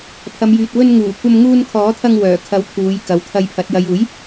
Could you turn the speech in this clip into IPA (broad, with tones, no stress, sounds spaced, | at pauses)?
pʰ ɐ˨˧ m j yː˨ t̚ w ɵ˧ n ŋ uː˨˩ kʷ ɐ˧ m ŋ uː˧ n kʰ ɔː˨˥ t̪ʰ ɐ˧ ŋ w œː˨˩ kʰ ɐ˨˥ w t̪ʰ uː˨˧ j k ɐ˨ w t̪ʰ ɐ˧ j pʰ ɐ˨˥ t̚ j ɐ˨ j uː˨˥ j